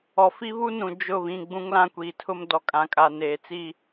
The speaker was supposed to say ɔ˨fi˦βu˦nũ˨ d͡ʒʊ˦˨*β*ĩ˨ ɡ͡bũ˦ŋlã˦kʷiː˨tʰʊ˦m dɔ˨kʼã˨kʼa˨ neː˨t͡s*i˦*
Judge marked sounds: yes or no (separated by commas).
yes, yes